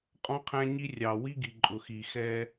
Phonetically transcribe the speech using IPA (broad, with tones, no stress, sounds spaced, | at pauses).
qʼ ɔ̃˦ qʰ æ̃˦ ɲ i˦ rʲ ɑ˨ w i˦ ɡ i˨ ǃʼ ʊ˨ x i˨ x ɛ˦